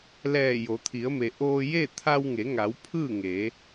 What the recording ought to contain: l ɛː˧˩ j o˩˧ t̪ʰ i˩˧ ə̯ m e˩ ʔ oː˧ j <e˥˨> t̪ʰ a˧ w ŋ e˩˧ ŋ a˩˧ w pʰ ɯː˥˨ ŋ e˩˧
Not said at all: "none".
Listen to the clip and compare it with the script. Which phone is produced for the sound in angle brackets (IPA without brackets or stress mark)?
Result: e˥˨